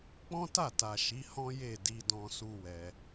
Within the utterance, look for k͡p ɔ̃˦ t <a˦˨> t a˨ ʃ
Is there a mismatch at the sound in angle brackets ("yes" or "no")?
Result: no